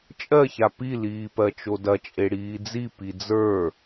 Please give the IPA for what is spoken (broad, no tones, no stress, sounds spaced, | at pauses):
t͡ʃʼ ɜ ç a p i l iː p ɜ t͡ʃ o d ɐ t͡ʃʼ e ɽ iː d͡z i p i d͡z ə˞